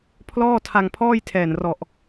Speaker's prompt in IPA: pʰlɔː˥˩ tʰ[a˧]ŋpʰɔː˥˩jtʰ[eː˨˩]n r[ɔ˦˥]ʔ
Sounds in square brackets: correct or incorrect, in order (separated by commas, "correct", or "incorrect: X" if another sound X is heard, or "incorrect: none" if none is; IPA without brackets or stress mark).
correct, incorrect: ɛː˨˩, incorrect: ɔ˨˩